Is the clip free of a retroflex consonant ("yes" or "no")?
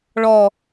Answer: no